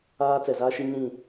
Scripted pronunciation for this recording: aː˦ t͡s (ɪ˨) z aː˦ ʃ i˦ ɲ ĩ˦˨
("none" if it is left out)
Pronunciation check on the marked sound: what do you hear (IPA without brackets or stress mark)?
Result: ɛ˨